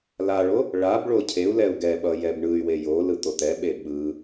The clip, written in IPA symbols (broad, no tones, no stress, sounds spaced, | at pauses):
l a ɭ o | ɭ a b ɭ o cʰ e u̯ l ɛ u̯ ɡ ɛ ɓ ʌ j ɛ b ɳ ɯ y̯ w e j o l ɯ t̪ o t̪ ɛ ɓ e ɓ ɯ